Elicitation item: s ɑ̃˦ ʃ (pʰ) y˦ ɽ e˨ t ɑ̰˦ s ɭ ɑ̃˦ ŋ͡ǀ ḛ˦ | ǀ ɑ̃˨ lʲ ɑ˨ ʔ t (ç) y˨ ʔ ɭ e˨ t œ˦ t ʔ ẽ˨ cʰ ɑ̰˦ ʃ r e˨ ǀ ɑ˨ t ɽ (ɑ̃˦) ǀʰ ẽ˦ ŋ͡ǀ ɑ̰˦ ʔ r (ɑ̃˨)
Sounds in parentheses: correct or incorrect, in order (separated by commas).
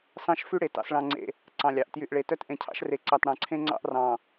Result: incorrect, incorrect, incorrect, correct